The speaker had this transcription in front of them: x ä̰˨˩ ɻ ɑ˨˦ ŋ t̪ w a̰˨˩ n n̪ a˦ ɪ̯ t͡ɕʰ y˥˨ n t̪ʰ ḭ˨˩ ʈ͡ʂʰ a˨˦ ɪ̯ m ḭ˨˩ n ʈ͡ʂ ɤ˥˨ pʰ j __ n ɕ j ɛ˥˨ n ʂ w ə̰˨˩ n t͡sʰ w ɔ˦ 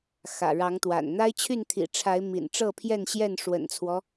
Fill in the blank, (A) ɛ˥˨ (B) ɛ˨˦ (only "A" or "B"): A